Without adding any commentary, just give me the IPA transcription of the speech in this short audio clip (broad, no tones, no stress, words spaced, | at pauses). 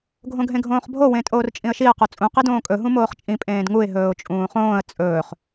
ɡʱõɡʱẽɡʱõːχbʱo wẽtʼoːrt͡ʃʼĩə̯ʃiə̯ qot͡sʼũ qidõːkʼɵ ɦũmoːχt͡ʃʼĩ pʼẽːdŋuɪ̯ ɦɵːʊ̯t͡ʃʼũːχõːə̯ t͡sʼɵːχ